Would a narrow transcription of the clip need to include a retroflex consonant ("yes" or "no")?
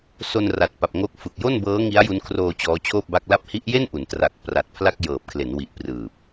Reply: no